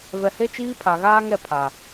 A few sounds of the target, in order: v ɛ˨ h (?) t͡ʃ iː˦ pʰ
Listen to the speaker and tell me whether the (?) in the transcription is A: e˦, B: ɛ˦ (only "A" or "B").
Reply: A